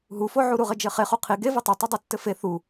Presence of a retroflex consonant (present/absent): absent